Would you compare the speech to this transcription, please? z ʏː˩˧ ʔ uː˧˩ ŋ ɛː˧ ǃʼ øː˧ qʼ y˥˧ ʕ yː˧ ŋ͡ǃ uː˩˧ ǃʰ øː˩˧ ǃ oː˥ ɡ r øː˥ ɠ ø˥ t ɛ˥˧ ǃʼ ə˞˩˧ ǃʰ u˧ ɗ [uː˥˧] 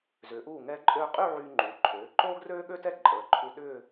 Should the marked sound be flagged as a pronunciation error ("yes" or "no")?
yes